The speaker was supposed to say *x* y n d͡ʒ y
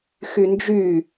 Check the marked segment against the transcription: correct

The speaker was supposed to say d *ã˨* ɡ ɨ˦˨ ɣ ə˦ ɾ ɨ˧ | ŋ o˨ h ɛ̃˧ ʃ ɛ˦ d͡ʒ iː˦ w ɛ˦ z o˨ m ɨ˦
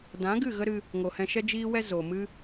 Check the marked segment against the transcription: incorrect: ã˨˦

